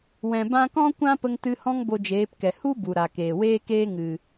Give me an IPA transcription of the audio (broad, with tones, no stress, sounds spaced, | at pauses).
w ɛ̃˨ b ã˧ k ɔ̃˦ kʷ ã˦ p ə˧ ŋ t ɨ˧ h ɔ̃˦ ŋ b o˧ d͡ʒ eː˨˦ p k ɛ˨ h u˦ b u˨ ɾ a˨ k eː˨ w eː˦ k eː˦ ŋ ɨ˨